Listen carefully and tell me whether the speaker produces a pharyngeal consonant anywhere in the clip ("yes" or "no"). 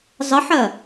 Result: yes